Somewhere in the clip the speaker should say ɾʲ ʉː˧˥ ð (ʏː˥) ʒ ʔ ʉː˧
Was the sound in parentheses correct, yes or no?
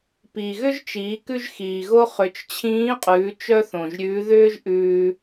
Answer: yes